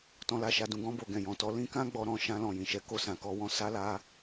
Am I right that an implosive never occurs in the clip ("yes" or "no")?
yes